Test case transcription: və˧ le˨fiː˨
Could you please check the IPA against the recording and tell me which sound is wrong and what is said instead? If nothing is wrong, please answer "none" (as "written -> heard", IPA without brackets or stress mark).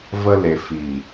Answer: none